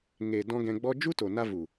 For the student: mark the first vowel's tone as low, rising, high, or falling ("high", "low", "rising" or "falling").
low